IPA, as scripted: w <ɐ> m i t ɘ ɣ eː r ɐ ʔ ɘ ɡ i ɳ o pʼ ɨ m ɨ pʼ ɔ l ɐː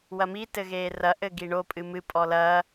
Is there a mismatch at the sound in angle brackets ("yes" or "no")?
no